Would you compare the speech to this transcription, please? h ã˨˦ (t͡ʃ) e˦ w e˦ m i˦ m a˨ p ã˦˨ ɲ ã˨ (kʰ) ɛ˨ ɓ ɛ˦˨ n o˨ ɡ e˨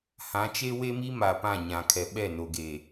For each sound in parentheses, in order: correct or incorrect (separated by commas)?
correct, correct